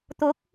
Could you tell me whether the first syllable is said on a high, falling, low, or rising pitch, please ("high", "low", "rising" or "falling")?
rising